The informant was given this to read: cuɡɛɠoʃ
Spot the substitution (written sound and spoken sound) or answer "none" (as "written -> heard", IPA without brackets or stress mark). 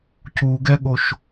none